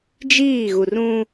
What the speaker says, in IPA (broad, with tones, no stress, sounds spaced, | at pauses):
d͡ʒ iː˦˨ ɣ u˨ r ũ˦